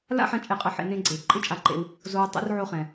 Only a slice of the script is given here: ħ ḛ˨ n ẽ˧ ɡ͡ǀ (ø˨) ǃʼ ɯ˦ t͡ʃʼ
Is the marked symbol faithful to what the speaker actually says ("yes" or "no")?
no